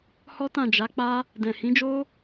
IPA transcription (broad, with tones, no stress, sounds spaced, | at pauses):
h ɔ˦ t ã˦˨ d͡ʒ a˨˦ k͡p a˦ | d ɛ̃˨ h ĩ˨˦ d͡ʒ o˦